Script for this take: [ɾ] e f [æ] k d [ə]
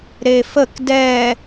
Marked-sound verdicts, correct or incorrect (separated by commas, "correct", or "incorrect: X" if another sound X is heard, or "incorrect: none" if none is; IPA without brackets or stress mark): correct, incorrect: ə, incorrect: ɛ